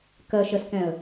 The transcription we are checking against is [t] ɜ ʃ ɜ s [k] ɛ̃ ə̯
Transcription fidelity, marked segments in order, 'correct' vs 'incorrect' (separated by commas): incorrect, correct